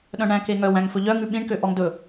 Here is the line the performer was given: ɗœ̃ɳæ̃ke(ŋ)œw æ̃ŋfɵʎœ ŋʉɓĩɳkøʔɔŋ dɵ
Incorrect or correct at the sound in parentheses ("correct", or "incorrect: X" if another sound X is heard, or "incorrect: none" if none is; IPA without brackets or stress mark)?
correct